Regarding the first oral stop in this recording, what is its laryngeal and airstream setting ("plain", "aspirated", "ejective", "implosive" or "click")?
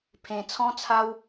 aspirated